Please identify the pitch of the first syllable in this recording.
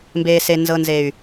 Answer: low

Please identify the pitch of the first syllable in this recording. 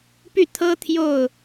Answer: falling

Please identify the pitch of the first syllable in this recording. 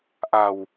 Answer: low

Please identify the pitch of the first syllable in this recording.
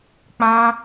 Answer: high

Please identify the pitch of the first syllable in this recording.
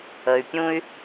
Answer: low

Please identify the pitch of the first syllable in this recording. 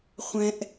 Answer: high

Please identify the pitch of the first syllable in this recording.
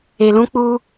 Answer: low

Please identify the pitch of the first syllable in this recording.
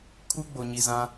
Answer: high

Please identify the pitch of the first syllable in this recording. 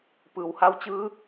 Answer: low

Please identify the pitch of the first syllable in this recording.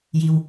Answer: low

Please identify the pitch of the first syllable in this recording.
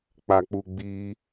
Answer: low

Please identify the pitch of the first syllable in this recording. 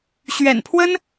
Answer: low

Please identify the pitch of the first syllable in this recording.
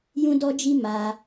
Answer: high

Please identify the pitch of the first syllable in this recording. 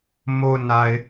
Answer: low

